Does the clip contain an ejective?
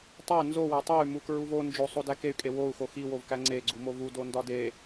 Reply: yes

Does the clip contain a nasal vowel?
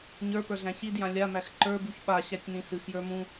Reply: yes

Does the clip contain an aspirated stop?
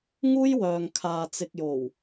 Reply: yes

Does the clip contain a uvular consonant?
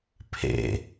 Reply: no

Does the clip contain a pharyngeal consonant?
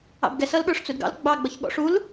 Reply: no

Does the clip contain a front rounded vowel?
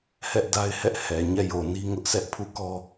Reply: no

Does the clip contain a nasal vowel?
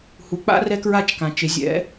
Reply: yes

